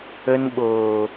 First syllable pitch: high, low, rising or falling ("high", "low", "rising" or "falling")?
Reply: high